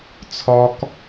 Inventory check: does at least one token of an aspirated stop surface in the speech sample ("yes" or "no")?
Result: yes